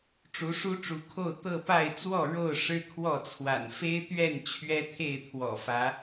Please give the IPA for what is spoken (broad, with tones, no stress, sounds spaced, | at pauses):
ʈ͡ʂ u˨˦ ʂ u˦ ʈ͡ʂ u˨˦ kʰ o˥˨ ʊ̯ t̪ ɤ˥˨ p a˥˨ ɪ̯ t͡s w ɔ˥˨ ɻ o˥˨ ʊ̯ ʂ ɻ̩˦ kʰ w ɔ˥˨ t͡sʰ w a̰˨˩ n f e˦ ɪ̯ t̪ ɥ ɛ˥˨ n t͡ɕʰ ɥ ɛ˦ t̪ʰ e˥˨ ɪ̯ t̪ʰ w ɔ̰˨˩ f ä˨˦